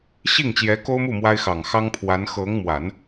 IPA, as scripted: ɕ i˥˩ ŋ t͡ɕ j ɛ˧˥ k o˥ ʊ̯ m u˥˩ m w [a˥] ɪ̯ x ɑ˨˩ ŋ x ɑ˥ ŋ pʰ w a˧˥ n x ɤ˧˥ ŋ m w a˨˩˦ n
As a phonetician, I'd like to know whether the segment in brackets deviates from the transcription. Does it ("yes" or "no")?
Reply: no